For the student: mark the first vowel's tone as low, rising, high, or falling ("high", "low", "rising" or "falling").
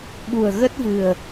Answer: low